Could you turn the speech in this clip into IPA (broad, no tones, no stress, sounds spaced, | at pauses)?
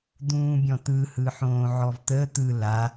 d̪ ũː bʲ ɔ̃ t̪ ɯ h ɯ ħ õː ʕ ɔ v t̪ ə t̪ ɯ l a